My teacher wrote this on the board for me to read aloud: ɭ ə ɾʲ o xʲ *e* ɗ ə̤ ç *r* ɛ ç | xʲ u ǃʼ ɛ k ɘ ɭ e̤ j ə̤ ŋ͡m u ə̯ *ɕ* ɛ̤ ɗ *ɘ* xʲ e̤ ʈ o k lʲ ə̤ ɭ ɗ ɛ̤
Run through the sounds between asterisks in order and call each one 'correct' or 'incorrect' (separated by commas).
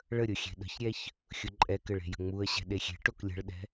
incorrect, incorrect, correct, incorrect